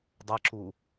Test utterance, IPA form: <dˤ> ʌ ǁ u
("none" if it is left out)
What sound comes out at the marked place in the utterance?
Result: dˤ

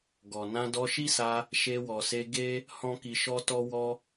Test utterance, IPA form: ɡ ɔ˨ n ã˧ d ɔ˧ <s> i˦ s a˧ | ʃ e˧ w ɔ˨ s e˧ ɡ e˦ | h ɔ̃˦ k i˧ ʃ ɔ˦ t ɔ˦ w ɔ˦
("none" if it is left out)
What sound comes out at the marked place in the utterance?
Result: ʃ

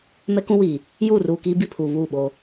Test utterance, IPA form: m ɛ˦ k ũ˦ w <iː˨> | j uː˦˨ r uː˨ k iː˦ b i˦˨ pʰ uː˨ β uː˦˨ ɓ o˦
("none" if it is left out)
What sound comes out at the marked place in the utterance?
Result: iː˨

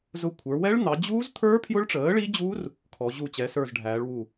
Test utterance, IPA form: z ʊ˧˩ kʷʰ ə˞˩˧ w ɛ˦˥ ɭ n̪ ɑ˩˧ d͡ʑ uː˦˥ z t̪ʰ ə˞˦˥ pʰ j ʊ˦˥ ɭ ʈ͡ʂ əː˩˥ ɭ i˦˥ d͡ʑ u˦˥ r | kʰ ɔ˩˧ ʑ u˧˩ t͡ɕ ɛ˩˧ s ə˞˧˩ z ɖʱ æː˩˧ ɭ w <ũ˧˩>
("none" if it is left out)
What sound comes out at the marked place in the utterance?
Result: u˧˩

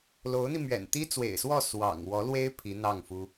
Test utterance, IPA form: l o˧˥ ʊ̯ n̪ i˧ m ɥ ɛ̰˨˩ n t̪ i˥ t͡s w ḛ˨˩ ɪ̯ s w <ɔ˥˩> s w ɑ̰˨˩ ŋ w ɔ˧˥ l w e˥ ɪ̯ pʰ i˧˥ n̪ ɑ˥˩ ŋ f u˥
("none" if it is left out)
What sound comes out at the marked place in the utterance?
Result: ɔ˥˩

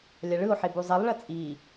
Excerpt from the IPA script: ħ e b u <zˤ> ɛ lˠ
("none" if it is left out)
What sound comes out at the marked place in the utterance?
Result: zˤ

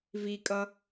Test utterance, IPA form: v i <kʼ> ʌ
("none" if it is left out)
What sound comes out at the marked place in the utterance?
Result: kʼ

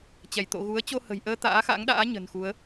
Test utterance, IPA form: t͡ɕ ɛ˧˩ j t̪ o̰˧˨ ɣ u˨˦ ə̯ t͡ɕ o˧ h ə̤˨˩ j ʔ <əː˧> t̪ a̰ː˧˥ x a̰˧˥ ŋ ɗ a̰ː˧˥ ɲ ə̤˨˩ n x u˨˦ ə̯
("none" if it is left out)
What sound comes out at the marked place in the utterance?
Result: əː˧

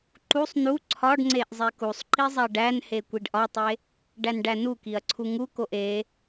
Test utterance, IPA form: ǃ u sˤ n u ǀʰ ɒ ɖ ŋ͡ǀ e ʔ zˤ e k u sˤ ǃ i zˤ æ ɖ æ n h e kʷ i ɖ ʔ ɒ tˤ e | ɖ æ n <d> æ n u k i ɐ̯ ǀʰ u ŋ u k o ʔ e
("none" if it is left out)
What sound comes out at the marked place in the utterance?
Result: ɖ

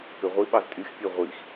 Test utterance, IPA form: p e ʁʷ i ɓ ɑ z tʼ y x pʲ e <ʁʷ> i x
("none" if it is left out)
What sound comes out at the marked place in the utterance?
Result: ʁʷ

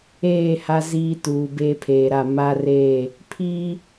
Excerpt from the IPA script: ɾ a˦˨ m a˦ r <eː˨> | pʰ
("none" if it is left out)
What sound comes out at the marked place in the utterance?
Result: eː˦˨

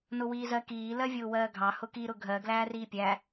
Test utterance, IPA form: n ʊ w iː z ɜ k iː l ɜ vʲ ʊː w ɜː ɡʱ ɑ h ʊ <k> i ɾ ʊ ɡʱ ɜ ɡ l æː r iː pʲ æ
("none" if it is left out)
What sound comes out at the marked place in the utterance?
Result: k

